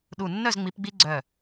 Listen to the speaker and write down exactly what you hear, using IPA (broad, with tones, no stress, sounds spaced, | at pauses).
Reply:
ɗ u˧˩ nː œ˥˨ z ŋ͡m i˨˦ p ɡ͡b i˦ ɡ͡ǀ œ˧˩